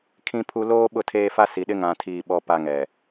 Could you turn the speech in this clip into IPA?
kʰ ĩ˦ pʰ u˦ l oː˦ ɓ ʊ˦˨ tʰ eː˦ f a˦ s i˨ ɗ ɪ˦ ŋ ã˨ tʰ iː˨ ɓ ɔ˨ p a˨ ŋ ɛ˨

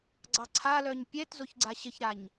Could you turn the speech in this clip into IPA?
ɡ͡ǀ ɑ ǀʰ a l œ ɲ pʲ ɛ t z o ç ɡ͡ǀ a ɕ ə ç ɾ a ɲ

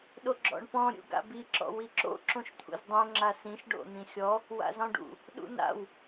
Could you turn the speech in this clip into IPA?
ɗ o ɡ͡ǁ ɔ̰ ɳ p ɔ̃ ɾʲ ṵ ɡ a̰ b i ǁ ɔ̰ w i ǁ o̰ ǁ õ ʃ t̪ʰ ṵ z dˤ õ ŋ͡ǁ a s ĩ ʃ ɖ o̰ n̪ ĩ xʲ ɔ | w a̰ z ɔ̃ ɖ ṵ | ɗ ṵ n a̰ w

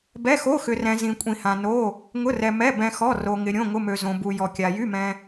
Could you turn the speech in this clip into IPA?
b ɛ˧˥˧ x o˧˥˧ x ʏ˧ r ɛ̃˧ z ĩ˧ kʷʼ ĩ˧ h ã˧ n o˧˥˧ | ŋ ʊ˧˥˧ r ɛ˧ m ɛ˧˥˧ b ɛ̃˧ x ɔ˧˥˧ r o˧ ŋ ɪ˧ ɾʲ õ˧˥˧ ŋ ʊ˧˥˧ m ø˧ z õ˧ b u˧ j ɔ˧ kʲ a˧ j y˧˥˧ m ɛ̃˧

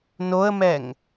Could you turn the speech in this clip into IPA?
n o ə̯ m ɛ ŋ

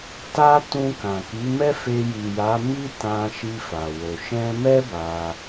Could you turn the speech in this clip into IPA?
t a˧ t ũ˧ k ã˨ k i˨˦ m ɛ˦ f e˧ j i˨ j a˨˦ m i˦ t ã˧ ʃ i˧ f a˨ w o˨ ʃ ɛ̃˧ m ɛ˦ b a˧

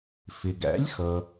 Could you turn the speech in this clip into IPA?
f ɪ˩ ɡ æ̰˩˥ lʲ x ʌ˩

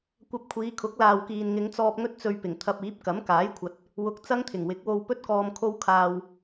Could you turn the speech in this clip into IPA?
kʷ ɐ˧ p̚ kʷʰ iː˨˧ kʰ ʊ˨˥ k̚ l aː˨ w k iː˨ n ŋ ɪ˨˧ ŋ t͡s ɔː˧ p̚ ŋ ɵ˥ t̚ t͡s ɵ˧ ɥ p ɪ˨˩ ŋ t̪ʰ ɐ˧ p̚ iː˨˥ p̚ k ɐ˨˥ m k aː˨˥ j kʷʰ ɐ˨ t̚ | w ʊ˨ k̚ t͡s ɐ˥ ŋ t̪ʰ ɪ˨˩ ŋ w ɪ˨˥ k̚ w o˧ w p ɵ˥ t̚ k ɔː˧ m kʰ o˧ w kʰ aː˨ w

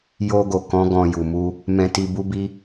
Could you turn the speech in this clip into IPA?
j o˧ ɡ o˨ k ɔ̃˨˦ ɡ ɔ̃˧ j u˨ m u˧ | m ɛ̃˧ t i˧ b u˦ b i˦

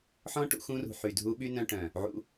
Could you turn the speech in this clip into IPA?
ħ ɔ̃˦ ʈ ṵ˧ x ũ˧ r ṳ˨ ħ y˨ dʱ u˧ ɓ y˦ n œ̃˧ ʈ œ̃˨ | ʕ ṵ˧

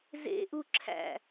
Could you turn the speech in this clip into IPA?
z ḛ ʔ u ǁʰ æ̰

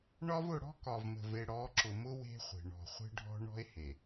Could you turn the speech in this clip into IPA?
ɳ ɒ˦ v ʊ˦˨ ɽ ɔ̤˦ k ɒ˨ v m ə̤˨ v e˨ ɽ ɔ˨˦ ǁ ʊ˨ m ʊ˦ w e̤˦ χʷ e̤˨ ɳ ɔ̤˨ χʷ e̤˦ ɖʱ ɔ̤˦ ɳ ɔ̤˦ e̯ h e˨

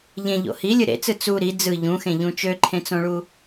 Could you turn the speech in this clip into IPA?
ʎ ẽ ʎ o̰ h i lʲ ɯ ɾ ḛ t͡s ɯ t͡s u ɾ i d͡z ɯ ʎ ũ x ẽ ʎ ũ t͡ʃ ø ǃʰ ẽ t͡s õ ɭ u

